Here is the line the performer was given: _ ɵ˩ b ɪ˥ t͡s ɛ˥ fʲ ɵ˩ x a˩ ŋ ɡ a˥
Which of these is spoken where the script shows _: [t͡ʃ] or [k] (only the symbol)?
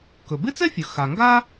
k